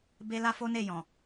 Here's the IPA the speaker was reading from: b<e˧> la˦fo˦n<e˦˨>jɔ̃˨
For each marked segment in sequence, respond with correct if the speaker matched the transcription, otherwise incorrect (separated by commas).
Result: incorrect, correct